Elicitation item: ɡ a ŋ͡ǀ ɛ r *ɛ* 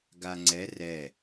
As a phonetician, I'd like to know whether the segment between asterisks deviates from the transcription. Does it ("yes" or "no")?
no